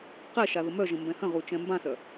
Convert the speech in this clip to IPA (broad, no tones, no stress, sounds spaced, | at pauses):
q ɛ ʃ a ð ə m œ ʒ ə̃ m b ɛ̃ h ə̃ ʁ u t͡ʃ ɛ̃ m b ã s œ